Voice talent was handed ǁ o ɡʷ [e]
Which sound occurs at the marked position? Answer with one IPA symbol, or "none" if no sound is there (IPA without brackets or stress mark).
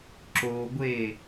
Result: e